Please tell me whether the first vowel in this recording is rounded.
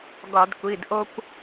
yes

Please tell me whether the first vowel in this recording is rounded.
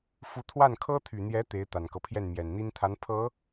yes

